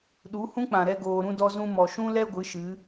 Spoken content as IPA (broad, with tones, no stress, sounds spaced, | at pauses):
ɗ u˨˦ h ũ˦ k͡p ã˨ ɾ ɛ˧ ɡ oː˧ ɾ ũ˦ d ɔ˦ z ũ˦ m ɔ˨ ʃ ũ˦ l ɛ˦ ɡʷ ɨ˨˦ ʃ ɨ˨˦